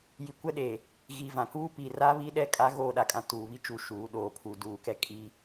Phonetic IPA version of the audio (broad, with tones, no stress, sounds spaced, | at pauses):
j i˨ kʷ ɛ˦ ɗ e˨ | ɣ i˨ v ã˨ k uː˦ p i˨ r a˦ β i˦ ɗ ɛ˦˨ kʼ a˦ ɣ oː˦˨ ɗ a˨ kʼ ã˨ t uː˨ β i˦ t͡ʃ u˦ ʃ uː˨˦ ɗ oː˨ pʰ u˨ d uː˨ k ɛ˦ kʼ i˦